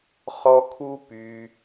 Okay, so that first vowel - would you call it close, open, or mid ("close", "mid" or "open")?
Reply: mid